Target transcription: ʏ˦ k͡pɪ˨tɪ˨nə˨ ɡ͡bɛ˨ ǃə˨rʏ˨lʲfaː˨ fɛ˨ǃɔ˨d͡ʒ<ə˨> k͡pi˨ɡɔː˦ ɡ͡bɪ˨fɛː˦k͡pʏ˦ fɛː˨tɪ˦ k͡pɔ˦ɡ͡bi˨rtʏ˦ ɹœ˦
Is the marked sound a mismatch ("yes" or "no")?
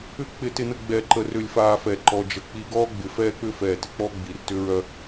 no